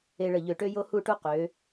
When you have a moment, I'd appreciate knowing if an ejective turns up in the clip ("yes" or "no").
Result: no